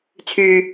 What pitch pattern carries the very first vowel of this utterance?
high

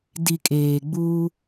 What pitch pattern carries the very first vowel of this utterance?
low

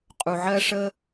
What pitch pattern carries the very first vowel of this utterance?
low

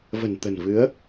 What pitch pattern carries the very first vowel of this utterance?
low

